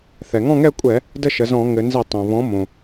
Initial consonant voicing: voiceless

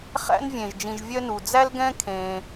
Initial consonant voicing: voiceless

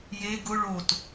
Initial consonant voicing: voiced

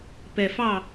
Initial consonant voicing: voiceless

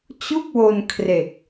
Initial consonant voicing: voiceless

